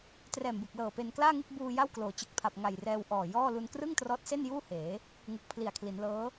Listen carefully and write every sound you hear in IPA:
t r ɛː˨˩ m b ɯ˨˩ k̚ l ɤː˨˩ p e˧ n k l aː˥˩ ŋ ɯ˥˩ k̚ b uː˧ j a˥˩ w k l oː˩˦ t͡ɕ ɯ˨˩ k̚ pʰ a˨˩ p̚ ŋ a˨˩ j r ɛː˧ w ʔ ɔː˨˩ j ɔː˥˩ l u˧ n k r ɯ˥˩ ŋ t r ɔː˦˥ t̚ s e˥˩ n j uː˥˩ h eː˩˦ | ŋ u˨˩ k̚ pʰ l i˨˩ a̯ kʰ l i˩˦ n l ɤː˦˥

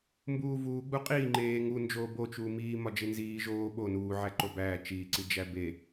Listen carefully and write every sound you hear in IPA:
m b uː v uː ɡ͡b u qʼ iː ŋ͡ǃ eː ŋ u n d͡ʒ oː b o t͡ʃ uː m iː m ɒ d͡ʒ e n z iː ʒ oː ɓ o n uː ʕ æ ǃ o b æː t͡ʃ iː ǀ i d͡ʒ æ b e

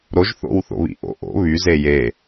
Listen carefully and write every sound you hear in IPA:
ɾ o ʒ θ o̰ w θ o̰ β ḭ ʔ o̰ ʔ o̰ β y z e j e

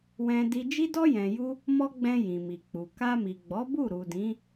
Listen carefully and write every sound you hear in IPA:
w ɛ̃˧ d i˧ d͡ʒ i˦ d ɔ˦ j ɛ̃˧ j u˦ | m ɔ˦ ɡ͡b ɛ̃˧ j ĩ˨ m i˨ k͡p u˨ k a˧ m i˨ ɡ͡b ɔ˨˦ b u˦˨ ɾ u˨ d ĩ˨˦

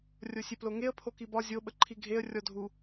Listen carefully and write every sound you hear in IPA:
rʲ o sʲ e p l o ŋ e ə̯ pʰ o k i b ɒ zʲ o ɓ ə ǃʰ i ɡʱ e ə̯ rʲ ɔ dʱ u

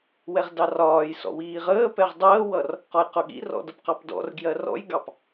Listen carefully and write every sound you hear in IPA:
w ɛ ʁ d ɑ r ɒː j s ɔ̰ w iː ʁ əː p ɛ ʁ dˤ əː w ʌ r | q ɒ j q ʊ ɠ ḭ r ɔ̰ d ʌ p q ɑ p d ɔ̰ r ɡ j ɜ r ɔ̰ j ɡ ɑ p

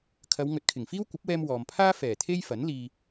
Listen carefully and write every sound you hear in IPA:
kʰ ɐ˨˧ w ŋ ɵ˨˥ t̚ kʰ ɪ˨˩ ŋ f iː˥ w kʷ ɐ˨˥ p̚ w ɛː˧ m w ɔː˨ m pʰ aː˥ f ɛː˨˩ t̪ʰ e˥ j f ɐ˨˥ n l iː˨

